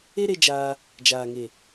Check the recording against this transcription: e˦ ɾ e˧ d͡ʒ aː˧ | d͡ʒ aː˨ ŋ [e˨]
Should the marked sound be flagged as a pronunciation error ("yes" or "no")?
no